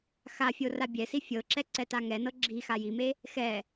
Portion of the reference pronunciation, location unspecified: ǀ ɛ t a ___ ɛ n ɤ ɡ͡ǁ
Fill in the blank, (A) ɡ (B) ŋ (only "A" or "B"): B